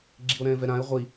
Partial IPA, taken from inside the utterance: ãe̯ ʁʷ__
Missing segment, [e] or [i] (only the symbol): i